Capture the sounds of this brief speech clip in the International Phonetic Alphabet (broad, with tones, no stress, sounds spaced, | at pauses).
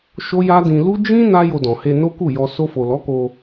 ʃ o˦ j a˦ d ĩ˧ l u˦ d͡ʒ ĩ˦ n a˦ j o˧ d ɔ̃˨ h e˧ n o˦ k u˦˨ j ɔ˧ s o˧ f o˨ l ɔ˨˦ k o˧